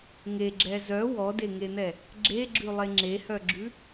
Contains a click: yes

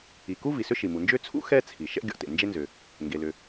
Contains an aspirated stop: yes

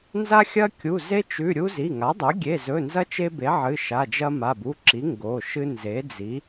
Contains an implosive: no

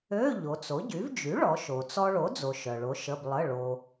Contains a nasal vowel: no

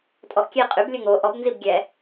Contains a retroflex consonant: no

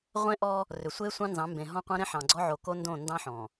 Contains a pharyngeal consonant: yes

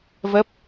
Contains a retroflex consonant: no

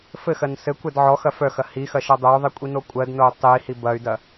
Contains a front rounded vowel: yes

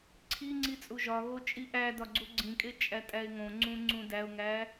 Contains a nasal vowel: yes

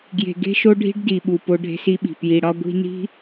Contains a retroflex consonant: yes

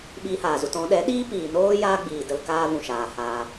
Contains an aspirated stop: no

